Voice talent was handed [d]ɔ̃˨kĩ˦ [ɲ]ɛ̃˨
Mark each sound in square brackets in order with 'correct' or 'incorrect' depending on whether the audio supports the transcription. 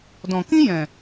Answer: correct, incorrect

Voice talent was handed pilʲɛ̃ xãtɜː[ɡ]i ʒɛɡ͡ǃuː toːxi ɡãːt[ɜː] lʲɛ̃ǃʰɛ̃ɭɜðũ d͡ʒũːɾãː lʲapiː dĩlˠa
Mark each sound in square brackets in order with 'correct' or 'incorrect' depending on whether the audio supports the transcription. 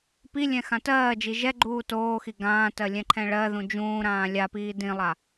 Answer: incorrect, incorrect

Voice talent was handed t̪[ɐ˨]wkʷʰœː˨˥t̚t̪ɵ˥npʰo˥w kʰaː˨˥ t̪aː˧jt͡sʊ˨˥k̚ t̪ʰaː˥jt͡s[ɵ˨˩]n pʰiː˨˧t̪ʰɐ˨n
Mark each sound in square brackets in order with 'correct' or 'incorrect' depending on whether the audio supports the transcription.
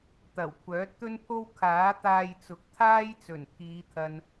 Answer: incorrect, correct

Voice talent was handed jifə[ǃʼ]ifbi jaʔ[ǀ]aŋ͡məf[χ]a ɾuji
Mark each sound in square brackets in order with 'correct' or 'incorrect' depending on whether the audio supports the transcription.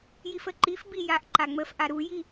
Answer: incorrect, incorrect, incorrect

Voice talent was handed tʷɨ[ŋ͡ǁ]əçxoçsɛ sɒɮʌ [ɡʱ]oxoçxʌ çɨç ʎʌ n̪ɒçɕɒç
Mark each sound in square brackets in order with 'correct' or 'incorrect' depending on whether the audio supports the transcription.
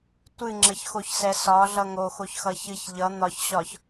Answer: correct, incorrect

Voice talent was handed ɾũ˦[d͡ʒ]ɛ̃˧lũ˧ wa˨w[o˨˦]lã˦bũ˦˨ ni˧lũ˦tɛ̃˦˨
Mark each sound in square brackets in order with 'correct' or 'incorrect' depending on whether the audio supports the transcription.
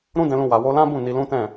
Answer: incorrect, incorrect

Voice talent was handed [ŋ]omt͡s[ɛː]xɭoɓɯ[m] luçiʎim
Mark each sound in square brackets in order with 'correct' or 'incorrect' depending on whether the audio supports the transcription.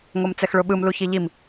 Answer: correct, incorrect, correct

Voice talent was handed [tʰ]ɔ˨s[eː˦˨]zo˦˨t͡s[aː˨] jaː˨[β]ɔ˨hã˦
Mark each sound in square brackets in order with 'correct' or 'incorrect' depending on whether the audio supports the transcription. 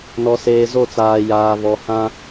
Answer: incorrect, incorrect, correct, correct

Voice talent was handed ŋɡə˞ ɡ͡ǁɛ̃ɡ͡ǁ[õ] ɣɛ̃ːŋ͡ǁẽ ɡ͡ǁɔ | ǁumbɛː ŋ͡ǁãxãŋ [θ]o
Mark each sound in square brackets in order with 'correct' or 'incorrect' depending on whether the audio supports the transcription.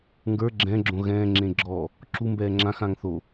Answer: correct, correct

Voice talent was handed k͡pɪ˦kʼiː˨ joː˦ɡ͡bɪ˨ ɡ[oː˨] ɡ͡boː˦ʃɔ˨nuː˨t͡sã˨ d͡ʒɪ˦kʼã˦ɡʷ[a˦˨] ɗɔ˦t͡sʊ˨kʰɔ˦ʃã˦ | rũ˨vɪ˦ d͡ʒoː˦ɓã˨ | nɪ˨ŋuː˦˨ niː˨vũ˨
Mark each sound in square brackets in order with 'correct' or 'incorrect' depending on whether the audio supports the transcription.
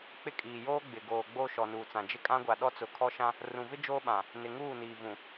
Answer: correct, incorrect

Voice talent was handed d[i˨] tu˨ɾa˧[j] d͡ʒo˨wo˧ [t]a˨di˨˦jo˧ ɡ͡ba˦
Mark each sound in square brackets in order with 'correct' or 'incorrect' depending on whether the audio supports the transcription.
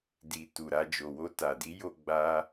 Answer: correct, incorrect, correct

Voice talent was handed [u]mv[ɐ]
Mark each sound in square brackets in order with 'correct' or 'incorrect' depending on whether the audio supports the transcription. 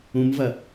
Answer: incorrect, correct

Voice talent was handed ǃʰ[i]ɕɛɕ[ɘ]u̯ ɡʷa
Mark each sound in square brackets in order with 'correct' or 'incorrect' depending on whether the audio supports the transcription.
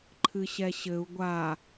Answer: incorrect, correct

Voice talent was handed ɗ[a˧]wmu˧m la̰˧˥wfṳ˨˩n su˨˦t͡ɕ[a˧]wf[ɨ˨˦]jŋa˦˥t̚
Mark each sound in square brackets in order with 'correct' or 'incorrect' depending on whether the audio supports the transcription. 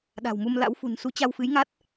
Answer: incorrect, correct, correct

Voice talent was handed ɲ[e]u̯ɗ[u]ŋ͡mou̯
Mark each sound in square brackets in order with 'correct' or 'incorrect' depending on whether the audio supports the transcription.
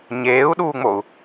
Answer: incorrect, incorrect

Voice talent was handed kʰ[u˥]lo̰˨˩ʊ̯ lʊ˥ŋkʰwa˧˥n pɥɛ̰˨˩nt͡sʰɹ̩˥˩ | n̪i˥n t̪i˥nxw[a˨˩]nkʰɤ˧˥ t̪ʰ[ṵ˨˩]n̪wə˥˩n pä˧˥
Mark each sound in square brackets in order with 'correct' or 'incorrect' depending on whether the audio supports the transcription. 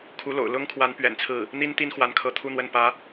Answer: incorrect, incorrect, incorrect

